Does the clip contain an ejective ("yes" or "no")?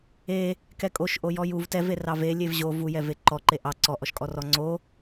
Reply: yes